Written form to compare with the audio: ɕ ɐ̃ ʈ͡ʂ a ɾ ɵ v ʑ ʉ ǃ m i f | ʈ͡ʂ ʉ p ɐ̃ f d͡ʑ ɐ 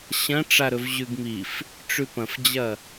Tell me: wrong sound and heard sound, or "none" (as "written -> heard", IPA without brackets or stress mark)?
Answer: ǃ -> ɡ